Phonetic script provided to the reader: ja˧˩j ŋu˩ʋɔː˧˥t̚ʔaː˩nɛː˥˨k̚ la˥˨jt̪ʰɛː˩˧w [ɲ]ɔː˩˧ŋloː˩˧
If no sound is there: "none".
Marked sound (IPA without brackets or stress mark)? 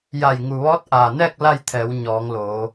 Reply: ɲ